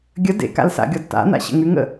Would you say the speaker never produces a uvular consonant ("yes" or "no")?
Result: yes